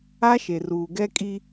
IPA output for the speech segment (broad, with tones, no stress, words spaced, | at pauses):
a˦ʃe˨ruː˨ ɡɛ˦kʼi˦